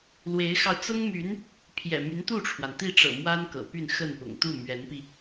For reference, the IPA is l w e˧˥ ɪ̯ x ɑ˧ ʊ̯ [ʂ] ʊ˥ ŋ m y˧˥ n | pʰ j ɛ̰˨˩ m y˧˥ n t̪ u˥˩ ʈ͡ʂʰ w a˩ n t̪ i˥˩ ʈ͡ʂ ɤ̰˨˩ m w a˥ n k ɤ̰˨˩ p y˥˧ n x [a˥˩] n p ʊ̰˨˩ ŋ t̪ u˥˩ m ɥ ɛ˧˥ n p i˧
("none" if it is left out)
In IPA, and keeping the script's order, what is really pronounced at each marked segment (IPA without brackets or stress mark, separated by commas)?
t͡s, ə˥˩